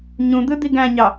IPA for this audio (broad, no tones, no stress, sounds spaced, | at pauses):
ɲ ũ d̪ ɯ d̪ i ɡ æ̃ ɲ ɑ